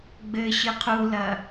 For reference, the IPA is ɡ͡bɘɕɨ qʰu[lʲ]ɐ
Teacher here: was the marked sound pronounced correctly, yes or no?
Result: no